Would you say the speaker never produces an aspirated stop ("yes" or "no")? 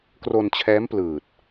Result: no